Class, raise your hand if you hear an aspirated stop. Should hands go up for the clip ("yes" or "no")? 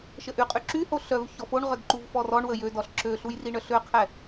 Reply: yes